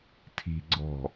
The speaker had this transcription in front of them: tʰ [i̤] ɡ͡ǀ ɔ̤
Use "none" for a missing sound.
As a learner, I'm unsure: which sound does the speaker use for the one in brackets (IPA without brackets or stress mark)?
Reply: i̤